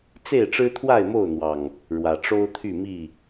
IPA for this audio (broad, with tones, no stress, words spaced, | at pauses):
t͡se˥˨ɪ̯ ʈ͡ʂɻ̩˦t̪ʰwa˥˨ɪ̯mo˥˨ʊ̯n̪wɑ˨˩ŋ | ɻwä˨˩ʈ͡ʂo˦ʊ̯t̪ʰy˥˨mi˥˨